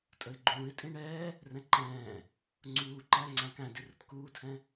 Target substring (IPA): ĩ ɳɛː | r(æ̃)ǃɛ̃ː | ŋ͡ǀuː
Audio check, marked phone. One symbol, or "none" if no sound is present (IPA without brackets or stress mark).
ɛ̃